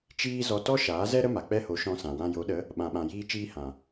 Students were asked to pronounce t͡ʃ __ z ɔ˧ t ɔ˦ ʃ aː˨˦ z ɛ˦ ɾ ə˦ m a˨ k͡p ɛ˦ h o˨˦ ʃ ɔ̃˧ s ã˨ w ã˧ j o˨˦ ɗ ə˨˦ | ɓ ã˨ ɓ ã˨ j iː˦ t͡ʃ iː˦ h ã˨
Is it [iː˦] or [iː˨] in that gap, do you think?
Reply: iː˦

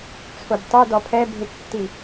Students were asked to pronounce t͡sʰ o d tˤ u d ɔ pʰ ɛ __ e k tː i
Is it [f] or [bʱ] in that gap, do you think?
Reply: bʱ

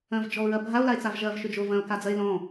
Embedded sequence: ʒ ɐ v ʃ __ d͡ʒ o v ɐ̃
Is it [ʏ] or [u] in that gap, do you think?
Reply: ʏ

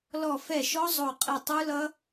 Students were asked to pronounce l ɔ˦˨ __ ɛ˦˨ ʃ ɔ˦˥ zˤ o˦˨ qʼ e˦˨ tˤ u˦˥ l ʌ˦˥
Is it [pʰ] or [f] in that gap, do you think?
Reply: f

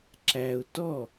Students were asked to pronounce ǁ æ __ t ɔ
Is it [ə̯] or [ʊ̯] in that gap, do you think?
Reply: ʊ̯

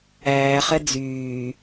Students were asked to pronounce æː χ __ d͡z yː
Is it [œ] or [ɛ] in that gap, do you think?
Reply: ɛ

